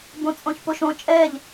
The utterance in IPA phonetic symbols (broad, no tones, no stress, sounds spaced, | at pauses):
b õ t͡sʼ õ ç p o ʃ õ t͡ʃʼ ɛ ʎ